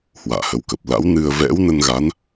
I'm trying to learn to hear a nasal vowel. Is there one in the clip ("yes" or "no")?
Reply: no